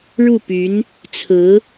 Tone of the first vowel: falling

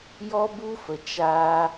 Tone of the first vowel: high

